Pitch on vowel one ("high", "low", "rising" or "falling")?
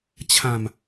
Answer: low